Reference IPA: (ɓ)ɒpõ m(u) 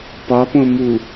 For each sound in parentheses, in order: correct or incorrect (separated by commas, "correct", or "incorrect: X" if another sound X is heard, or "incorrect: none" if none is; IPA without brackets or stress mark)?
incorrect: p, correct